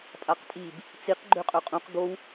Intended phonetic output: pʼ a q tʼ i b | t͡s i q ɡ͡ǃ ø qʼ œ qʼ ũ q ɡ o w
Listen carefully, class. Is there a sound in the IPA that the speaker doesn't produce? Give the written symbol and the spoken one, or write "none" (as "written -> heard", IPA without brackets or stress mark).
none